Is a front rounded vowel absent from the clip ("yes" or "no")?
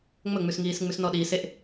yes